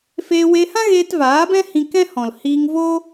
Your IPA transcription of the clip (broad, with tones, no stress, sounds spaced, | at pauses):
f eː˧ w e˧ h ã˦ ɣ eː˧ t v aː˨˦ b ɛ̃˦ h ĩ˧ k ɛ̃˦ h ɔ̃˨ l h iː˧ ŋ v o˦